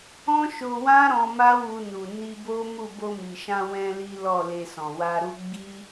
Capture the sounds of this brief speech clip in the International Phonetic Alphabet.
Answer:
ɔ̃˦ ʃ o˧ w ã˦ ɾ ɔ̃˧ m a˦ w u˧ n u˨ n i˧ b o˦ m u˦˨ b o˧ m i˨ ʃ ã˧ w ɛ̃˧ l i˦ l ɔ˦˨ l e˧ s ɔ̃˨ w a˧ ɾ u˦ ɡ͡b i˦

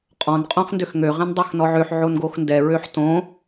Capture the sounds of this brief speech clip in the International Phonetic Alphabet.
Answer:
qʼ ɔ̃ n qʼ õ χ n d ø x ŋ ø ʁ ẽ n dˤ ɛ x n ɔ ʕ ø ħ ʕ o n ɡ o x n d ɛ ɹ ø ħ t õ

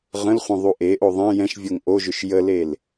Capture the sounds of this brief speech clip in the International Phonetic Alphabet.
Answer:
ʁ ə̃ l χʷ ɛ̃ ðˤ u ʔ e ʔ o ðˤ ɛ̃ j ɛ̃ ʃ vʲ o ŋ ʔ o ʒ ʏ ʃ j ə l e l

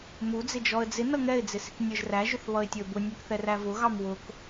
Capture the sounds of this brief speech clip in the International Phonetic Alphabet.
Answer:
m u d͡z ɪ d͡ʒ ɔ ə̯ d͡z ɪ n ʌ ŋ ɛ ɪ̯ d͡z ɪ s ɪ k nʲ ə˞ ʒ r æ ʒ ʊ θ β ʌ ɪ̯ tʲ ə˞ b ʊ nʲ ɛ k θ ɛ r æ v ʊ ɣ ɑ m w ʊ k

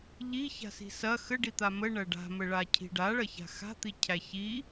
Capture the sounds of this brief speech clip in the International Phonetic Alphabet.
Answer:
ʎ i ç a̤ s i̤ s ɐ x ə ɖ i t̪ a m ə ɳ ɐ ɖ a̤ m ə ɭ a cʰ i̤ ɖ a ɭ ɐ ç a̤ x a̤ t̪ i cʰ æ ç i

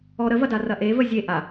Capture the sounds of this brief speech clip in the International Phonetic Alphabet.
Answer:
ɔ ɾ ə v ɐ d a r ɐ ʔ e v ə zʲ e ʔ a

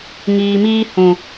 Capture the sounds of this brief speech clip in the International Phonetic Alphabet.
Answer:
ŋ iː˨ m iː˧ h ũ˨

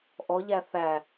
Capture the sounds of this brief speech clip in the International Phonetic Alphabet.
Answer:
ʔ ɔ ʎ æ θ æ

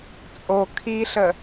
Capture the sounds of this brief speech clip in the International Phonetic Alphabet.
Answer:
t͡sʼ o kʰ i ɬ ə

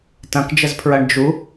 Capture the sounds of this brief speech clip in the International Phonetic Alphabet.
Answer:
t ɐ̃ k d͡ʒ ə z pʰ ɹ ɐ ɳ d͡ʒ u

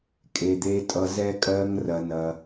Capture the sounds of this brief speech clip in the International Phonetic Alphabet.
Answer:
kʼ e˨ d̪ e˧ tʼ ʌ˧ z ɛ˦ kʼ ɜ˦ ŋ r ɐ˧ n ɐ˧

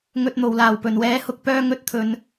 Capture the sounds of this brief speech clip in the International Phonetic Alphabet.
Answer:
ŋ ɵ˨ t̚ n̪ o˨˩ w l aː˨˩ w p ɵ˨˩ n w ɛː˨˥ h ʊ˧ k̚ p œː˧ ŋ ɵ˨˥ t̚ t̪ʰ ɵ˨ n

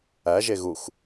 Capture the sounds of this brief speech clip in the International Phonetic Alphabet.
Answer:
æ ʒ e ɣ u x

